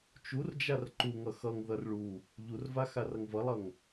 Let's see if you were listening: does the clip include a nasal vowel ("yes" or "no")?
no